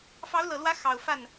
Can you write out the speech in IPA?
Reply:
fɑ˧˥ʊ̯lɤ˨˩lwä˧˥ xɑ˨˩ʊ̯fa˥˩n

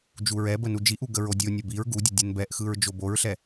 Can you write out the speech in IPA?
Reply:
d͡ʒuɹɛbə nud͡ʒiʔu ɡəɹodʲo nʲəbiɹ ɡudʲə dʲɯnbɛʔxɯɹ d͡ʒoboɹɬɛ

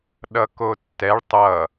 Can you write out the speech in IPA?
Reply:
ɗʌkotːɛɭ tˤʌ

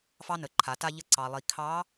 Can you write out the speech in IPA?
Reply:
fɑ˥nə˩˧ǃʰa˩˧ ta˧ʎə˧ ǀɑ˩lˠi˩ kʰɑ˧˥

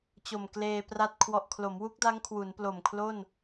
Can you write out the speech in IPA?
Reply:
t͡ɕo˨˩mkleː˧pra˥˩t̚ kʰwɔ˨˩ʔkʰlo˩˦mwu˦˥k̚da˦˥ŋ kʰwu˩˦nplo˨˩m kʰlo˥˩n

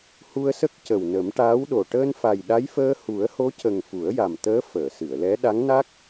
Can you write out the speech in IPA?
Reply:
hu˧ə̯sə˦˥k̚ cə˨˩wnə˨˩˦mʈaː˧˥wɗo˨˩ ʈəː˧nfa˨˩jɗa˧˥jfəː˧ hu˨˩˦ə̯ho˧˥cə˨˩ŋ fu˨˩˦ə̯ja˨˩mt̪əː˧˥ fəː˨˩˨sɨ˨˩˨ə̯lɛ˧˥ ɗa˧˥ŋna˦˥k̚

